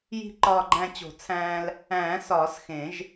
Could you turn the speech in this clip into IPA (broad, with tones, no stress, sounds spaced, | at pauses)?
j i̤˧ ǃ ɒː˧ ɡ͡ǃ æ̃˧ t͡ɕ o̤˨˩˦ t͡sʰ æ̃ː˧ l | æ̃ː˨˩˦ s ɒː˨˩˦ s x ẽ˨˩˦ ʒ